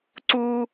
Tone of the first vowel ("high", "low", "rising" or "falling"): high